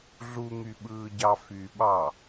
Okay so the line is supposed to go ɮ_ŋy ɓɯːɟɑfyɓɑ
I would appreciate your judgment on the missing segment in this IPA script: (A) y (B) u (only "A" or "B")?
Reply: B